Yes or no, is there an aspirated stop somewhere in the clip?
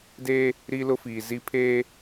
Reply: yes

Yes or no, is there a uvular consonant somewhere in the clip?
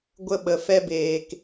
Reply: no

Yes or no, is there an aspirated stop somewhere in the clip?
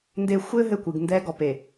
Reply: no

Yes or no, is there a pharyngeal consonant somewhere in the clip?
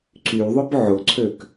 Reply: yes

